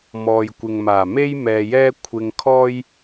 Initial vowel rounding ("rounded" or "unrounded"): rounded